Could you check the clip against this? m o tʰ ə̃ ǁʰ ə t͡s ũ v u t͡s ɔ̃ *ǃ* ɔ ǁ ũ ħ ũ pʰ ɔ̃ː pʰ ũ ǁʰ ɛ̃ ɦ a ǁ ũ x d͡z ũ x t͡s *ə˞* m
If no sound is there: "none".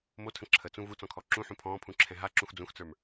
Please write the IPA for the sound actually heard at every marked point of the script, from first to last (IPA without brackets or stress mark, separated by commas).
kʰ, ə˞